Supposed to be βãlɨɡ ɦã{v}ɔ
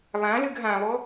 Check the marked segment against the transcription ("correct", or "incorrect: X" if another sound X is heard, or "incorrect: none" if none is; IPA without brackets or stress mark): incorrect: β